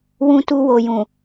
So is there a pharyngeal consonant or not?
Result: no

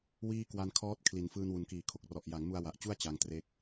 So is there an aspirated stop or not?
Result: yes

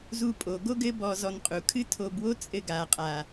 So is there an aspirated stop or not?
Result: yes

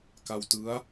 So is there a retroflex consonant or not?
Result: no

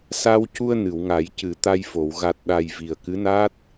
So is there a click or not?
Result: no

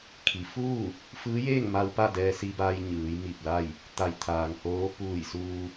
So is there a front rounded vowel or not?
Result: no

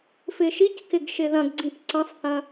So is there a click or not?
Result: yes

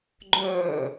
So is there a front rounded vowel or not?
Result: yes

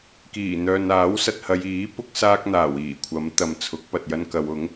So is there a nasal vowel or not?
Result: no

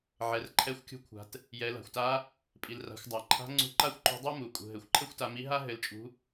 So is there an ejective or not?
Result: yes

